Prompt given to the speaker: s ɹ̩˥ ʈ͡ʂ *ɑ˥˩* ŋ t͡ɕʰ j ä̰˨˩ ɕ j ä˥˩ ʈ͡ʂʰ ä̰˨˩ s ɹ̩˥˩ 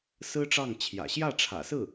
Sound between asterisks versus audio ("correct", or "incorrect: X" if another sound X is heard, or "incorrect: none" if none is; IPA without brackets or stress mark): correct